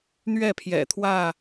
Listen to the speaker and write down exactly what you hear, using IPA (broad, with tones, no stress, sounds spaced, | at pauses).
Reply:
n̪ ɥ ɛ˥˨ pʰ j ɛ̰˨˩ t̪ʰ w ä˥˨